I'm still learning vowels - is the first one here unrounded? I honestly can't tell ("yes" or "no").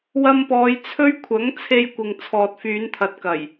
yes